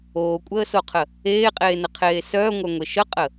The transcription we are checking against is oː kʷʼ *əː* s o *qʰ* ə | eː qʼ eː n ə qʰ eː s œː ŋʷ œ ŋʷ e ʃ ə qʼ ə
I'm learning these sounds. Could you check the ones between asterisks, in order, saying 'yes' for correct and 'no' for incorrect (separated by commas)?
yes, yes